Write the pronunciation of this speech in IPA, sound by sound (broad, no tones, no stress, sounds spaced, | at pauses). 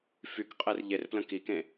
f y k qʼ e r ʎ e r p l ə̃ k i k ẽ